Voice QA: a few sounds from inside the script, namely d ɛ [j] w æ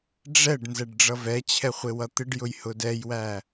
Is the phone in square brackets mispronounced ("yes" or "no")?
no